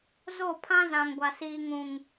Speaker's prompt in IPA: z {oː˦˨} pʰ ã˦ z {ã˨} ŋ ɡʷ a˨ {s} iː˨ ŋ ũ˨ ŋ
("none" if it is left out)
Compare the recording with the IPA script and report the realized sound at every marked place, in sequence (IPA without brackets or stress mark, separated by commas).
o˦˨, ã˨, s